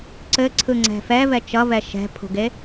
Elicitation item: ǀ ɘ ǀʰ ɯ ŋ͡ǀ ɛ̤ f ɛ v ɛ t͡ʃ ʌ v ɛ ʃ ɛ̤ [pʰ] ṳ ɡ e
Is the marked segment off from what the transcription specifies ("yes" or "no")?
no